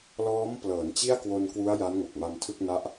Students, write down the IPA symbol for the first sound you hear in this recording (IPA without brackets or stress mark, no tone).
l